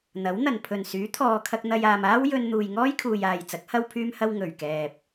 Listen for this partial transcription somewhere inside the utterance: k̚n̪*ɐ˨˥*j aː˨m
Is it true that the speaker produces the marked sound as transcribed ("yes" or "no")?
no